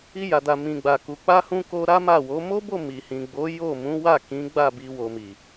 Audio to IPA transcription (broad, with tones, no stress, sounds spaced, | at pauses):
i˧ j a˨ d a˨ m ĩ˨ ɡ͡b a˨ k u˨ k͡p a˧ h ũ˧ k o˧ ɾ a˦ m a˦˨ w o˨˦ m o˦ b o˦˨ m i˨ h ĩ˨ ɡ͡b o˨˦ j o˦˨ m ũ˨˦ w a˦˨ k ĩ˨˦ ɡ͡b a˦˨ b i˧ w o˨ m i˨